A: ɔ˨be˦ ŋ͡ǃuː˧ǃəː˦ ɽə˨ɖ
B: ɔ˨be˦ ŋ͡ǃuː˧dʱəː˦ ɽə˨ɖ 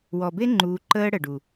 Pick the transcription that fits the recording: A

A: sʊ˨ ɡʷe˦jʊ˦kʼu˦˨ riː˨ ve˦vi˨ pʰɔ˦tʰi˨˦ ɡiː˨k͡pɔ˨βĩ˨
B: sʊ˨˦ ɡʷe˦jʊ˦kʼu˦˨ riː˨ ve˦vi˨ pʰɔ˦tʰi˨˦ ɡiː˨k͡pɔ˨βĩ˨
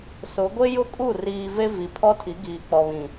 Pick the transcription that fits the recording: B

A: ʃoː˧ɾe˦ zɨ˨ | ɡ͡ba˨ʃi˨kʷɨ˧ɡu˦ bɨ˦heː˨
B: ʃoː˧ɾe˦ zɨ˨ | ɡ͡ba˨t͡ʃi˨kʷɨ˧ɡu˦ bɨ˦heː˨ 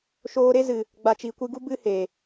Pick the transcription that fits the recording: B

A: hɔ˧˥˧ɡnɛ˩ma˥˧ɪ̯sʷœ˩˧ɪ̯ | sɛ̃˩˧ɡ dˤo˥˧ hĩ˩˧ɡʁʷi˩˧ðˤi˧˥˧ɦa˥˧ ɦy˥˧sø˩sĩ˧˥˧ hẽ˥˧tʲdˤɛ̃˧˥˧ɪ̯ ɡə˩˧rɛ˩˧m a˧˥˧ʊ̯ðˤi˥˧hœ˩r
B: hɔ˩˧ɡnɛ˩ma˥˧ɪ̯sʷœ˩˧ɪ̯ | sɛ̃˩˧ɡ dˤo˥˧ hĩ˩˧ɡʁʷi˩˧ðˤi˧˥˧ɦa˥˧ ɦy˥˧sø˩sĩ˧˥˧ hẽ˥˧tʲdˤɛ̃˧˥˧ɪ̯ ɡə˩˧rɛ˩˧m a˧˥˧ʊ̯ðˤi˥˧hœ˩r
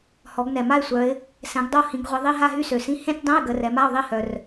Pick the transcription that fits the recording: B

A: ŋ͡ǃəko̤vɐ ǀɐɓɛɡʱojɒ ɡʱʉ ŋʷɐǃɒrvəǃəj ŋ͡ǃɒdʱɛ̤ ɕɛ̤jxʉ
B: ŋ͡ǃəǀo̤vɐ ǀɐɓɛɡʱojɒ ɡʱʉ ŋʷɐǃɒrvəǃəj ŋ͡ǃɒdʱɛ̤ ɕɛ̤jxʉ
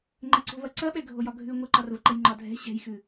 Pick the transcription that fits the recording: B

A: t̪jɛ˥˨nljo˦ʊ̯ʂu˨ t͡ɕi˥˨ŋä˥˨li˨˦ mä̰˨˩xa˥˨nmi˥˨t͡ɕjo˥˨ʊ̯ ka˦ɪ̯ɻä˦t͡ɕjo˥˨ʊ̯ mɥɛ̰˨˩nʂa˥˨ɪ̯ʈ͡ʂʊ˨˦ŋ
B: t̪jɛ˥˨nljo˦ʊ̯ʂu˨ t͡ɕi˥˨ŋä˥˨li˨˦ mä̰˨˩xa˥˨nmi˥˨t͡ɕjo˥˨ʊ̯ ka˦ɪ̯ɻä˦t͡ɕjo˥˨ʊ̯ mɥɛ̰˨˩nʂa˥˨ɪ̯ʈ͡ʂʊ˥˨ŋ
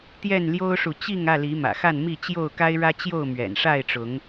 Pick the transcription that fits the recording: A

